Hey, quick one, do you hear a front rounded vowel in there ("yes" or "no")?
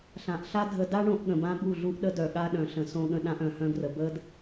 yes